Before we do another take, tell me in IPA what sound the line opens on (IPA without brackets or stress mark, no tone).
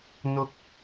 n̪